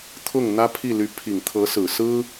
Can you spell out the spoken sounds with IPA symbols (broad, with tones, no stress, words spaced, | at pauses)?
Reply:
t̪ʰʊ˥˩ŋ n̪ä˥pʰi˥˩ly˧˥ pʰi˨˩ŋt̪ʰɤ˧˥sɹ̩˨˩ sɹ̩˥